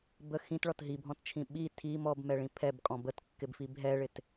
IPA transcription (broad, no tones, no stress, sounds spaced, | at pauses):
b ə x ĩ t ɭ ɔ t ɦ i bʱ ɔ̃ t t͡ʃʰ ĩ ɓ i tʰ i m ɔ b m ɛ ɭ ĩ pʰ ɛ b kʼ ɔ̃ b ə t kː ɪ b f i b ɦ ɛ ɭ ɪ t